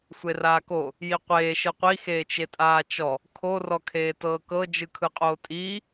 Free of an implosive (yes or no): yes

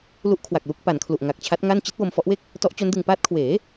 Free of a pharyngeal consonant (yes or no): yes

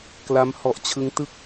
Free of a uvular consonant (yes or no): yes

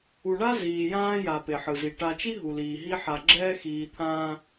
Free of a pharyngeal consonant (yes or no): no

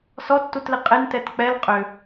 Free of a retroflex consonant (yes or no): yes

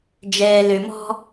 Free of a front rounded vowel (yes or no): no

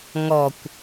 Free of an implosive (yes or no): yes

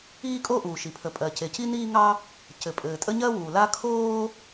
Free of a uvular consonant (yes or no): yes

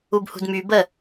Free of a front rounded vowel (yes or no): no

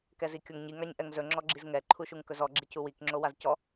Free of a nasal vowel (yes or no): yes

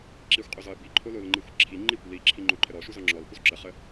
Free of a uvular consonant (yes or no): no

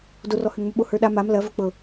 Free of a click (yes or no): yes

